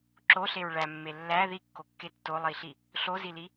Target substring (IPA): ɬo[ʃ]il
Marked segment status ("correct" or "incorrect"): incorrect